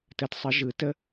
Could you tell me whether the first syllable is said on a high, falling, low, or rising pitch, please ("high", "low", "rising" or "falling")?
rising